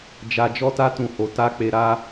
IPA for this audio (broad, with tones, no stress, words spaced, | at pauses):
d͡ʒa˧ d͡ʒɔ˦ta˦ tũ˦˨ho˧ ta˦ k͡pe˧ɾa˦